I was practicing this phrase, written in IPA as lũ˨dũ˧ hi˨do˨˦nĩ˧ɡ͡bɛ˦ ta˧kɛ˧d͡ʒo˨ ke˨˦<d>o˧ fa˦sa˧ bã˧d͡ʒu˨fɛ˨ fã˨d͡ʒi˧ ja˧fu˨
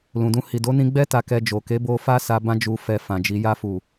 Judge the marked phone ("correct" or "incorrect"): incorrect